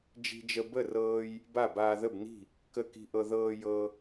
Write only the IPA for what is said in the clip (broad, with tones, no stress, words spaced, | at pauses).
d͡ʒi̤˧d͡ʒə˧ bə˥˩rɤː˧j | ba˥˩baː˧ðə˥˩bni̤˥˩ | kə˥˩ ki̤˧ʔɤ˧ ðɤː˧ jɤ˧